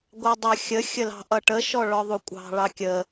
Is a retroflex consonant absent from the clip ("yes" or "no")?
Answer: no